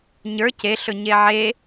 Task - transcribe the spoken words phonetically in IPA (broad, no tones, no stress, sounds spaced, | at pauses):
ɲ ə˞ c e ɬ ɵ ɲ e ʕ e